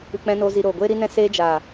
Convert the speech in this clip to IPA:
ɨ˧k͡pɛ̃˦noː˦zi˧ ɾoː˨ɡʷeː˦ɾi˦nɛ̃˦ seː˧d͡ʒaː˨

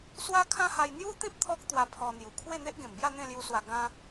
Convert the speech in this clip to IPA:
swa˦kʰã˦ha˧j n̪ju˦t̪ĩ˦p̚ t̪ʰɔ˦k̚t̪wa˧ pʰɔ˧n̪ju˨˩ kʰwe˥˧ n̪e˦ʔɡẽ˨˩mbja˥˧ n̪ẽ˥˧lju˧swa˧ ɡã˧

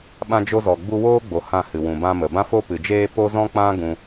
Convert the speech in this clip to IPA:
ɓã˧d͡ʒo˧zɔ˨ɡ͡bu˧ woː˦ɡ͡bo˨ hã˦˨hɨ˨wũ˨ bã˧mə˨ bã˧fo˧pɨ˨d͡ʒeː˧ po˦zɔ̃˦k͡pã˦ ɡũ˦

